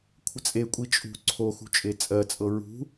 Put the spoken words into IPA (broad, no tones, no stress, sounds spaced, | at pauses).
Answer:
kʷʰ ə t͡sʼ e kʷʼ i t͡ʃʼ ṳ ǀʰ o x ṳ t͡ʃʼ e t͡sʼ ɜ t͡sʼ ɤ ɹ ṳ